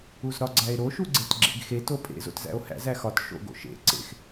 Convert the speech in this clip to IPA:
uzɾɒɡ͡ǀæe̯ɾo ʃuɡ͡ǀetɡ͡ǁḛɡxe topʼḛ zo̰tzæ̰o̯hæ̰z æxɒt ʃo̰ɡo̰ʃḛ ǀḛx

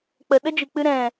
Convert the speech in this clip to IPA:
k͡pə˨ɗə˦d͡ʒɨ˨k͡pɨ˧ ɾɛ̃˨

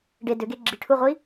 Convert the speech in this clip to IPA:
ɖe dʏɡe ɡ͡ǁiʈʰuʁʷi

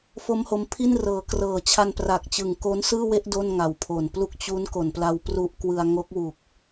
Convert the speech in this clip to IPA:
fo˦˥mho˧mpʰi˥˩nrɤː˩˦ krɤː˨˩t͡ɕʰa˧npra˨˩k̚t͡ɕɯ˨˩ŋ ko˦˥nsɯː˥˩we˥˩ʔ do˥˩nŋa˨˩wpʰo˨˩nplu˥˩k̚ t͡ɕu˦˥nko˨˩n pla˧wpru˦˥ʔkwɯ˧a̯ ŋo˦˥k̚wu˨˩k̚

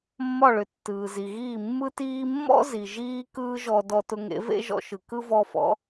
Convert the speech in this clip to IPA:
mːɒ˥˩ɭʏ˩ tːɯː˩zi˩ɣiː˥˩ mːɯ˥tiː˥ mːɔ̰˥ zi˩ʒiː˥ kɯː˥ʒɔ˧ dɔ˧tʊ˧ŋḛ˩˥ vḛ˥ʒɔ̰˧ʃɯ˩ kɯ˥vɔ˧fɔ̰˩˥

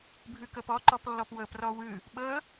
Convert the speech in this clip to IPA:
bʱɯkɤpɔǃɔp lːɔpwɤprɔ wɯ | ɓɤ

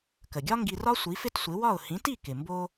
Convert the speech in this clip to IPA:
kə˩ɡʲɒ˥ŋɡi˧rɒ˥ sʷi˩˥fɪ˥tsʷɪ˩˥ wɒ˥˩ʊ̯ hĩ˩˥ti˥˩kɪ˩ mbo˧

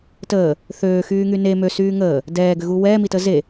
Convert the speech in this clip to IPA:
təː | θøːxyːŋy ne møsyː ŋəː | dɛːɡʏɣu wɛːmitə ze

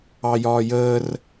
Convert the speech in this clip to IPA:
ɑjɒːjəːr

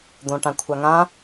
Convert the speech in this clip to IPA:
d̪õʈãkʷʰaŋã

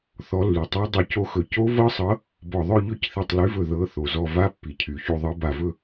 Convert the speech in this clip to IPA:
θɔ˨˥lːy˩tˤa˦˥ dˤy˧˩co˦˥xɵ˧˩ co˦˥vɤ˦˥sˤɤ˨˥ | bɔ˧˩ðˤɵ˥˧ ʎɵ˥˧cθi˧˩tˤly˨˥vɵ˧˩ ðɤ˨˥ θo˩zɔ˧˩ va˦˥pːi˩cʰy˩çu˧˩ ðˤɤ˨˥ba˧˩vɵ˥˧

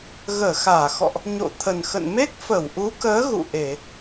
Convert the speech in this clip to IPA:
ɣəː˧˩xaː˧˩ xɔ̰˧˨ʔ | ɲo̰˧˨t̪ʰə˨˩nxə̰˧˨n me˦˥k̚fə˧˩wʔu˨˦kəː˨˦ ɣṵ˧˨ʔe˧˩˨

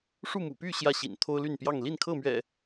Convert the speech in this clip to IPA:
ʂu˥˨mṵ˨˩py˥˨ ɕjä˥˨ɕḭ˨˩n t̪ʰo˦ʊ̯ly˥˨n pjɑ˥˨ŋ li˥˨nkʰɤ˥˨mɥɛ̰˨˩

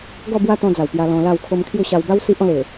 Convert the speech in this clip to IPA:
ɡɔ˥˧bwa˦t̪ɔ̃˧d͡za˨˩w pja˧lɔ̃˧la˥˧w kʰo˧mkʰju˥˧ɕa˧w ba˦w si˦ʔɔ̃˧le˨˩

